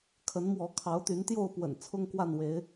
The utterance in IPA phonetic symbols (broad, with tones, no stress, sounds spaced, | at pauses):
kʰ ə˨˦ n m w ɔ˨˦ kʰ ɑ˨˦ ʊ̯ t̪ y˨˦ n t̪ j o˥˨ ʊ̯ p w ə̰˨˩ n t͡sʰ ʊ˦ ŋ k w a˥˨ n w e˨˦ ɪ̯